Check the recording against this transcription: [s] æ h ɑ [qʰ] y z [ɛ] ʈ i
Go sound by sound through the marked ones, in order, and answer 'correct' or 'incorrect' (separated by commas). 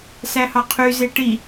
correct, correct, incorrect